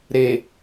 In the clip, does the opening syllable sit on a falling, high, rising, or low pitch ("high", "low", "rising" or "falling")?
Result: low